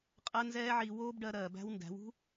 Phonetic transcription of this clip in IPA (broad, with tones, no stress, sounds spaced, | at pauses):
qʼ ɜ˧ n z ɛː˧ ʕ i˨ w oː˦ b ɖ ɜ˧ ɾ ɜː˨ b æ̤˦ w n d æ̤˨˦ w ṳ˦